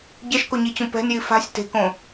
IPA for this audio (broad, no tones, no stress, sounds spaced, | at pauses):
ɟ ɛ ʃ k o ɲ i t͡ɕ ũ p ɛ̤ n j i f a̤ sʲ t e̤ k õ